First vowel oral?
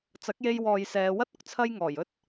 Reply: yes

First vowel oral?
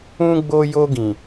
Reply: no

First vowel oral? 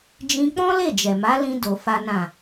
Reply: no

